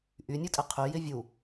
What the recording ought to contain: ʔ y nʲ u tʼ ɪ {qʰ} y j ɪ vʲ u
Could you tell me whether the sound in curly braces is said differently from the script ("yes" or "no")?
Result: no